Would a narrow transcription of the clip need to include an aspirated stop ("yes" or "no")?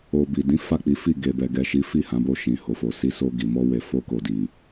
no